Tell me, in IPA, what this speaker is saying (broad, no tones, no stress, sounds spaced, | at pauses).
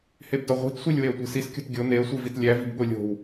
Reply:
h e b d ɒ ʁʷ i̤ t sʷ i lʲ w e ə̯ tʷ i̤ s i s kʲ o̤ t ɡʲ o n e ə̯ sʷ i v i t lʲ æ v i̤ b ɠ o lʲ o̤ w